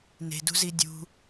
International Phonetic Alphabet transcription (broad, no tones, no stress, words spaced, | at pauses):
ne̤dṳzi dʲṳ